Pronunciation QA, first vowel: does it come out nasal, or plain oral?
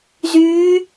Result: oral